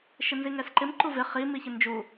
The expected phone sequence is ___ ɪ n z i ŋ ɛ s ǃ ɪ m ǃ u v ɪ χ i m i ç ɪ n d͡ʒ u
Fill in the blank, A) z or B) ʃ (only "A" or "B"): B